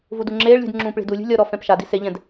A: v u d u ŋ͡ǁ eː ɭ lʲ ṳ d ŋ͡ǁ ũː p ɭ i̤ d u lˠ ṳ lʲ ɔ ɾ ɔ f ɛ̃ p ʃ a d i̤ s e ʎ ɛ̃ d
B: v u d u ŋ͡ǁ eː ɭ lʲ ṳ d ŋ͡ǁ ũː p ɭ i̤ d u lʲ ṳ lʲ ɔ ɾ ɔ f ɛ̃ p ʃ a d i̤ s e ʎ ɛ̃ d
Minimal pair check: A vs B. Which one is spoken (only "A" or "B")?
B